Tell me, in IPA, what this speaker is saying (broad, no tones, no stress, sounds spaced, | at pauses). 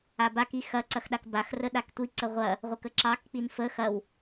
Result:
a b a k i x ɐ ǀ ɐ x ɗ a k b a x r ə ɗ a k tʷ i ǀ ə ʁʷ ɐ | ʁʷ ə k ə ǁ ɑ k k͡p i n f ə x ɐ w